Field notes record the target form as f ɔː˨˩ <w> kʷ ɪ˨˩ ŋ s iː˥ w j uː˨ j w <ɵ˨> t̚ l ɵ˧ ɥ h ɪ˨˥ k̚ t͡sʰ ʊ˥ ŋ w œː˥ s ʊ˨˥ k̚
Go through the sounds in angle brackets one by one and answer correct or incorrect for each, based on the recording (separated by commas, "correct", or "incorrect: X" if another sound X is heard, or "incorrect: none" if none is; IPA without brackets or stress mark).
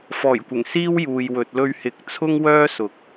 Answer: incorrect: j, correct